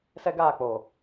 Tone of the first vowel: high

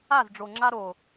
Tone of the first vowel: falling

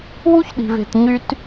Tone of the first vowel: high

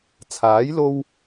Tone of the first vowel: rising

